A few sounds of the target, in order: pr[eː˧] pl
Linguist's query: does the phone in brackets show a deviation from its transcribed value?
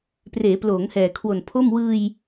yes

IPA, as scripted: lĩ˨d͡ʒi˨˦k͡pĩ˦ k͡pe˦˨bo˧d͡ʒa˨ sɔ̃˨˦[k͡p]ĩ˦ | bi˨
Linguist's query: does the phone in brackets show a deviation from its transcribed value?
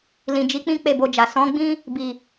yes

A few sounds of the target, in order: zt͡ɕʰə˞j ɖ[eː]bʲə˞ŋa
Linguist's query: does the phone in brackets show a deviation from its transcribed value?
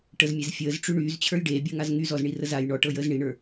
no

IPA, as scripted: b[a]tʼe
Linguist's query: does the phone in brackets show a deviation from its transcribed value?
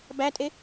yes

